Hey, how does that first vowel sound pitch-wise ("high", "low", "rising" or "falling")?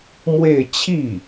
falling